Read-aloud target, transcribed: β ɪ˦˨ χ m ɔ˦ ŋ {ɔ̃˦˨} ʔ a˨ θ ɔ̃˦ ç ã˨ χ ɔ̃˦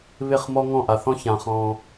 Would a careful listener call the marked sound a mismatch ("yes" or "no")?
no